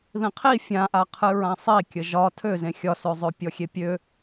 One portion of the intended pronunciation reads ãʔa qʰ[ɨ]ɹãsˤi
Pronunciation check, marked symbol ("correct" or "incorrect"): correct